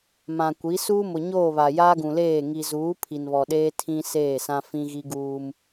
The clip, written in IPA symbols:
m ã˨ kʷ i˨˦ s uː˦ m ʊ˨ ɲ oː˦˨ β a˨ j aː˦ ɡ ũ˨ l eː˦˨ ŋ i˨ z uː˨˦ pʰ i˨ n β ɔ˨ ɗ eː˦ tʰ ĩ˦ s eː˦˨ s ã˦ f ĩ˦ ɣ i˦ ɡ uː˦ m

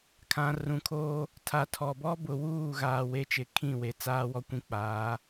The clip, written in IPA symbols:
kʰ ã˨ r ũ˨ kʰ oː˦ | tʰ a˨ tʰ ɔ˨ b ɔ˦ b ʊ˨ w uː˦˨ ɣ aː˨ w e˦ t͡ʃ ɪ˨ kʰ ĩ˦˨ w e˨ t͡s aː˦ w ɔ˦ kʷ ĩ˦ k͡p aː˨˦

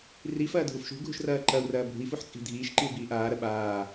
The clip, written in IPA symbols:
r i f ɐː dʱ u f ʃ ṳ ɡʱ ṳ ʃ r ɐː ǃ ɐ u̯ r ɐː bʱ ṳ i̯ f u ħ t͡sʼ i̤ dʱ iː ʃ ǃ i u̯ b iː ʔ aː ɾ ɐ ɓ aː

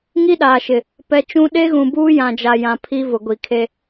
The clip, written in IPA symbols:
ŋ i˦ ɗ aː˨ ʃ ɪ˨ | p ɛ˨ t͡ʃ ũ˦ ɗ e˦ ɣ ũ˨ b uː˦ j ã˨ d͡ʒ a˨ j ã˨ pʰ i˦ v ʊ˨ ɡʷ i˨ kʰ e˦

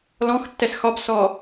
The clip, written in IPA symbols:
l ɔ̃ x tː ɛ s x ɒ b s ɔ

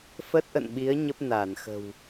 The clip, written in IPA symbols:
f ə˦˥ t̚ ʔ ə̰˧˨ n ɓ i˨˦ ə̯ ɲ ə˦˥ p̚ n aː˧˩ n x ə̤˨˩ w

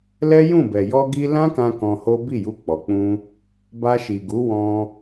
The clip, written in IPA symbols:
l ɛ˦ j ũ˦˨ b ɛ˨ j ɔ˧ ɡ i˧ l ã˦ k ã˦ k ɔ̃˧ h o˦ b i˦˨ j u˧ k͡p ɔ˨ k͡p ũ˧ | b a˧ ʃ i˨ ɡ u˨˦ w ɔ̃˧

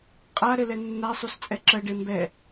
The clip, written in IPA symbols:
qʼ a ɾ ɘ l ɛ nː a sˤ u s t͡sʼ ɛ ǁ ɜ ɖ e m b ɛ

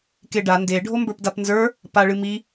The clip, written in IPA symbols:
k e ɖ a n d e ɖʱ o m b ə˞ p d a p n z ə˞ | p a ɭ ɨ m i

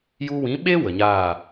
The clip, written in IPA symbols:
j u˧ w ĩ˨˦ ɓ e˦ w ə˨ ɲ aː˦˨

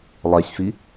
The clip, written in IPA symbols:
lˠ e sʲ f i

